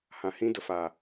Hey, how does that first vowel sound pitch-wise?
low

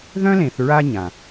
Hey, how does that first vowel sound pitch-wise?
high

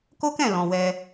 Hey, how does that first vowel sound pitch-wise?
high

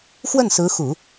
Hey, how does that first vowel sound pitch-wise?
falling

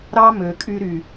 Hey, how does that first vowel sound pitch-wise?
high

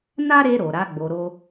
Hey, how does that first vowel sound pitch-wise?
high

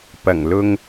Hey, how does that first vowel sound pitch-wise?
low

